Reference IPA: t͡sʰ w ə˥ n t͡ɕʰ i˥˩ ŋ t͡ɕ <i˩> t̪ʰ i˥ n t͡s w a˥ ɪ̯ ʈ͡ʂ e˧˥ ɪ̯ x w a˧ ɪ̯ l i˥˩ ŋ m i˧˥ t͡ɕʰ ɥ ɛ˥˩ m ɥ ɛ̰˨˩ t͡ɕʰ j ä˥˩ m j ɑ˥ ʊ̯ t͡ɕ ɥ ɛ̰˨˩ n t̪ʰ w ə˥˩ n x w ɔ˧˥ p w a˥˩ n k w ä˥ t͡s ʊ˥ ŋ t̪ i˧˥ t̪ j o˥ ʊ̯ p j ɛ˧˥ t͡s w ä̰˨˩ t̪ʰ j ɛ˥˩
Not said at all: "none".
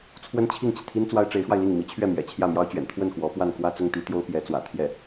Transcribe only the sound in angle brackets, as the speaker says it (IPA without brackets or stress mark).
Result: i˩